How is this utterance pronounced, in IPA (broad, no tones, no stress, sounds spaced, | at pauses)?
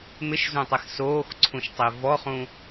m ɪ ʃ z ũ tˤ e x s oː x ǀʰ ũ ʃ tˤ e v ɔ χ ũ